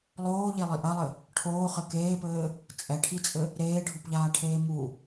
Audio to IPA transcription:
lˠ oː ʎ e lˠ i ʔ ɐ lˠ ɘ | ʈʰ oː χ ɘ k eː p ɘː | t͡sʼ ɛ ʈʰ i t͡sʼ ɘ | ɾ eː ɖʱ u p ʎ aː ʈʰ eː m u

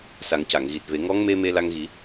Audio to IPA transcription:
s a˨˩˦ ŋ c a˨˩˨ ŋ ɣ i˨˩ t̚ v e˨˩˦ ŋ ɔ˧˥ ŋ m e˧ m e˧ l a˧ ŋ ɣ i˨˩˦

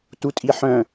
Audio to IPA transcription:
t u tʼ i ħ œ̃

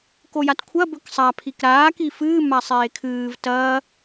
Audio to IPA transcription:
k o j a t kʷʰ ɐ b ɵ k sˤ a pʰ i k ɾ aː k i f ɨː m a sˤ eː kʰ ɨː v t ɐː

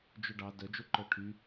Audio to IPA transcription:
d͡ʒ o ɖ ɑ d œ d͡ʒ o ǃ œ ʈʰ y

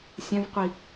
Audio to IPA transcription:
sʲ ɛ̃ v qʷ i

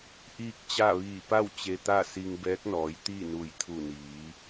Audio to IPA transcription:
ʔ iː˥˨ k̚ t͡ɕ a˥˨ ʋ iː˧˩ p a˥˨ w t͡ɕ e˧ t̪ a˥˨ s i˧ ŋ b ɛː˧˥ k̚ n ɔː˩˧ j t̪ i˥˨ n u˧˩ j t̪ʰ u˧˩ n iː˩˧

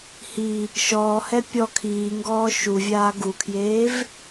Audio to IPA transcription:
h i | ʃ ɔː h ɛ pʲ ɔ kʰ iː ŋ ɡ ɔː ʃ u vʲ aː ɡ u kʰ j eː v

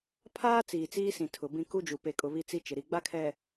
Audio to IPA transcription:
pʰ aː˦ t͡s iː˨ t͡s iː˦ s ĩ˨ tʰ ʊ˨ b ĩ˦ k u˦ d͡ʒ u˨ p e˨ kʼ ʊ˨ β i˦ t͡s i˦ t͡ʃ ɪ˨ ɾ i˨ ɡ͡b a˦ kʰ ɛ˨

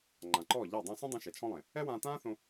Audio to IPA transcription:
ŋ͡ǃ ã˨ ǃ ɔː˦˨ ʎ a˦˨ dˤ ã˧ s ũ˦ dˤ õ˧ ʃ ɛ˨ t͡ʃʰ ɔ̃˦ lˠ ẽ˨ | ɛ˦ w ãː˧ t ãː˦ θ õ˧

